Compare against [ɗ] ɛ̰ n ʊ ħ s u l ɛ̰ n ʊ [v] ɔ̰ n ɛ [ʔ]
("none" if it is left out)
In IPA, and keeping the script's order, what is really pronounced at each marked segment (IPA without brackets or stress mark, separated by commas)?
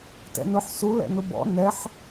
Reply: t, b, ħ